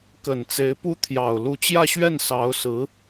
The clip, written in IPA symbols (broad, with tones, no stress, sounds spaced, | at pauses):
k ə˨˩ n t͡s e˧˥ ɪ̯ p u˥ t̪ʰ j ɑ˨˩ ʊ̯ l u˧˥ t͡ɕ j ä˥˧ ɕ ɥ ɛ˥˩ n s ɑ˧˥ ʊ̯ s ɹ̩˧˥